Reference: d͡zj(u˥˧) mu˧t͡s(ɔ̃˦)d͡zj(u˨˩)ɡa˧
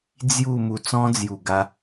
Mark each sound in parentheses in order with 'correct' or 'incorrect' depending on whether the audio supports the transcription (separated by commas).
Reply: correct, correct, correct